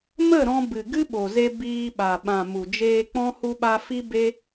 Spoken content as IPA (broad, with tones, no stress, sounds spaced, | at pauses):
m ə˦˨ ɾ ɔ̃˧ b ɨ˨ ɡ ɨ˦ ɓ o˨ z e˧ b iː˧ ɓ a˨ ɓ ã˨ m u˨ d͡ʒ eː˧ k͡p ɔ̃˦ h u˧ ɓ a˧ f i˦ b e˦